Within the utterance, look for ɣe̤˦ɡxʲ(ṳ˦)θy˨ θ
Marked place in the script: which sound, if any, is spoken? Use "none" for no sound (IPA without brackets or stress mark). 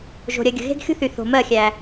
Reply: ṳ˦